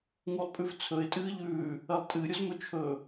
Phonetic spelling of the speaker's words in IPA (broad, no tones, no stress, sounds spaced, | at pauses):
ŋ u lˠ pʼ ʉ v t͡sʰ ɵ ɪ̯ tʼ ɨː ʎ ʉː | ɐ lˠ tʼ ɨ ɾʲ u z m ɵ t͡ʃʰ ɵ